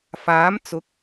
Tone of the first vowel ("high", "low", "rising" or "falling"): rising